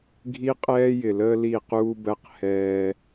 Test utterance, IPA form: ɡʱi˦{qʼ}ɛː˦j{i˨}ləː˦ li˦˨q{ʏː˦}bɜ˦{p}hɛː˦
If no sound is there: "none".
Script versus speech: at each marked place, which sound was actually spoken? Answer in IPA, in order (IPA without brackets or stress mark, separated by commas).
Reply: qʼ, ɪ˨, uː˦, q